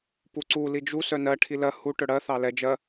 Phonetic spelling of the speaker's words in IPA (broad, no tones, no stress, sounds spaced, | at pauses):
p u ǀ u l i d͡ʒ u s œ n ɜ ʈʰ i l ɜ h u ʈ œ ɽ ɜ θ ɑ l ɛ d͡ʒ ɜ